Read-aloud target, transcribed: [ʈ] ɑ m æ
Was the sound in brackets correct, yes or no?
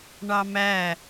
no